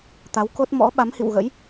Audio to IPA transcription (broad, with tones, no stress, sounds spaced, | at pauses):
t̪ a˨˦ w k o˦˥ t̚ m ɔ̰˧˥ ɓ a˨˦ m h ḭ˧˨ w ɣ ə̰˧˥ j